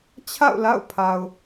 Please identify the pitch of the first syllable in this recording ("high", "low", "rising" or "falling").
falling